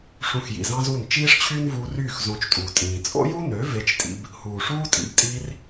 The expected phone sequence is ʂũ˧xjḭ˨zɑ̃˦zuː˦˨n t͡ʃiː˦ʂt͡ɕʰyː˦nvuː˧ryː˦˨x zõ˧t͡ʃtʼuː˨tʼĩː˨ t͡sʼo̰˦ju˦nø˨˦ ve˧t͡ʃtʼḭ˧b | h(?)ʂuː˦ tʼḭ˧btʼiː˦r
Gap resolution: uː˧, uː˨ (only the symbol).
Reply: uː˨